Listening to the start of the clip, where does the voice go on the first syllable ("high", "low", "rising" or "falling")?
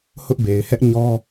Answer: high